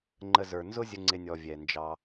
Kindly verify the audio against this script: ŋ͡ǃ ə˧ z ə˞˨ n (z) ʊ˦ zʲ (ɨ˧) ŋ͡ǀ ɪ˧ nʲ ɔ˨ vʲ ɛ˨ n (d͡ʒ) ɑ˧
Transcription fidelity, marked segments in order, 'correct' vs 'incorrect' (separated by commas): correct, incorrect, correct